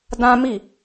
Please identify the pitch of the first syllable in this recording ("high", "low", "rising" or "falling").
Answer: high